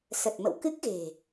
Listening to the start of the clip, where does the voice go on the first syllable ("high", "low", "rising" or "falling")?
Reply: low